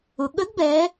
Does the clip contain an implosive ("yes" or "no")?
yes